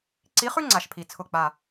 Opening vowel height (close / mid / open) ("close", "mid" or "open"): close